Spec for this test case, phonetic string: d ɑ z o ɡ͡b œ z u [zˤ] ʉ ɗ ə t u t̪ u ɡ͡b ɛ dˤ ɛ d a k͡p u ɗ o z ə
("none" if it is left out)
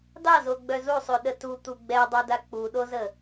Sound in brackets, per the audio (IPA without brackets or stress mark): sˤ